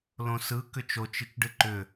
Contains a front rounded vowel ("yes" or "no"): yes